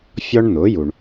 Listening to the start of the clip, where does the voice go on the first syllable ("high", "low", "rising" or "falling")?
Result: high